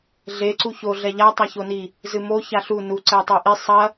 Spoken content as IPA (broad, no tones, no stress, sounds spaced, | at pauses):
ɮ e ǀ u ç o ɮ ɛ ʎ a tˤ a ç o n i | z ɨ m o ç a ɬ u n u ǀ ɛ tˤ o ʔ i sˤ ɐ